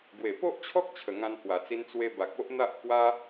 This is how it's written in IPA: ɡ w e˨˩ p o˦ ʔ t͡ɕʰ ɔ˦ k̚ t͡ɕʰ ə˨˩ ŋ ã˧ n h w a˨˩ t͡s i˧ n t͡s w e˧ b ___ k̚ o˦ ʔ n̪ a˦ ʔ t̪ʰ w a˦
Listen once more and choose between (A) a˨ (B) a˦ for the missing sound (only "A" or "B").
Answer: A